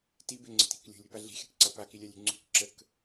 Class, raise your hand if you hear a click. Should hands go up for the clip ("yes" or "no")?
yes